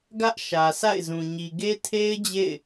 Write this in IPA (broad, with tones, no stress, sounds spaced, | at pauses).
ɡ ä˦ ʔ ʃ ä˨ s a̰˦˨ ɪ̯ z ũ˨ ɲ i˨ ɡ e˦ tʰ e˦ ɪ̯ d͡ʑ ḛ˦˨ ɪ̯